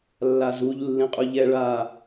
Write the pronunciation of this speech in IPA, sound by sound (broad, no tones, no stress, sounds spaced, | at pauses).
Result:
lː a z u ʎ lː ĩ qʼ u ʎ ɛ ɭ a